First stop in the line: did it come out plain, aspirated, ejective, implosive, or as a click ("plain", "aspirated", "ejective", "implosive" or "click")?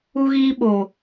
implosive